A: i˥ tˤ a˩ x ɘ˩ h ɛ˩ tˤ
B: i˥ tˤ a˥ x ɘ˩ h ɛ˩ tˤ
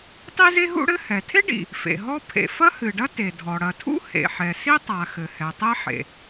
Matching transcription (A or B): A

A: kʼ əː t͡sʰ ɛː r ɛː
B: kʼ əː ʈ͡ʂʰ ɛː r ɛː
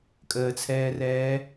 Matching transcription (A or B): A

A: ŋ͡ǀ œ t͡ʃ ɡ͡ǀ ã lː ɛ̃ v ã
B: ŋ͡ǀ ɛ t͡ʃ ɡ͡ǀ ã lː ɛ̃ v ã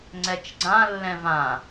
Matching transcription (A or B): B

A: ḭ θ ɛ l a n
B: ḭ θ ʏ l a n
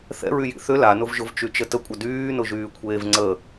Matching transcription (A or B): B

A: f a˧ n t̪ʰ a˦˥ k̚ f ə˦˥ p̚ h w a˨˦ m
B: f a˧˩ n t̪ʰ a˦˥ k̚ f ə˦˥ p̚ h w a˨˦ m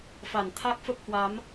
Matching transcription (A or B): B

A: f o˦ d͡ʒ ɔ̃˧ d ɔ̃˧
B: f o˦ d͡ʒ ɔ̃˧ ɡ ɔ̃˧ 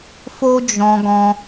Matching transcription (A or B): B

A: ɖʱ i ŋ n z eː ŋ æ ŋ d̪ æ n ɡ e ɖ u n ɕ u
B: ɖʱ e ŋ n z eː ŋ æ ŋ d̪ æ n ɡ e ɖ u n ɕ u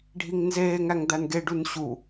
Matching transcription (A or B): A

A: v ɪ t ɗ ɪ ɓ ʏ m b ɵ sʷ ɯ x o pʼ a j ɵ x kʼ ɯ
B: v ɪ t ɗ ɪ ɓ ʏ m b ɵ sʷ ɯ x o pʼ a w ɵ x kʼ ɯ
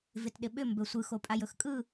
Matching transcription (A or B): A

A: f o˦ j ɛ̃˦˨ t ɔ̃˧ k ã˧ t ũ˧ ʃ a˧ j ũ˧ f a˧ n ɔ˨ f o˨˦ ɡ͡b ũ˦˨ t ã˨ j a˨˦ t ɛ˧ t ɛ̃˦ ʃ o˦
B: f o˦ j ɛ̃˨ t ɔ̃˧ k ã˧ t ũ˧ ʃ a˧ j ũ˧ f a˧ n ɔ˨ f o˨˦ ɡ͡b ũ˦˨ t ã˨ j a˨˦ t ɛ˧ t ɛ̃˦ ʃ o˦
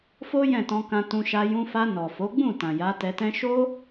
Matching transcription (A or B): A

